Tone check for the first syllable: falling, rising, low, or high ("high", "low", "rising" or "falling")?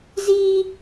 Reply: high